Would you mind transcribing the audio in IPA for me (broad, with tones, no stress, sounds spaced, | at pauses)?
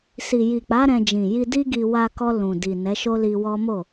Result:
s i˨ j i˨ k͡p a˨˦ ɾ ɛ̃˧ d͡ʒ ĩ˨ j i˧ d i˦ ɡ i˧ w a˧ k ɔ˧ l ũ˨ d i˨ n ɛ˨˦ ʃ o˦ l i˧ w ɔ˦ m o˦˨